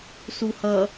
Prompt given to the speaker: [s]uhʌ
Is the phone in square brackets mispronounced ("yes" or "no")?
no